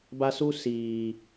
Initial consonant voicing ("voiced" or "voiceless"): voiced